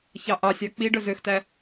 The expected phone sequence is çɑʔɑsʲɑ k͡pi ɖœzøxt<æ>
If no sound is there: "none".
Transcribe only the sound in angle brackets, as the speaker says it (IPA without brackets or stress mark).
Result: æ